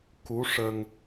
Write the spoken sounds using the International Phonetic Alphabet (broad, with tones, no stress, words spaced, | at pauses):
ku˧˥ʂə˧ŋ